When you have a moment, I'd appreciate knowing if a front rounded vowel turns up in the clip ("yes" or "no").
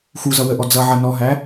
no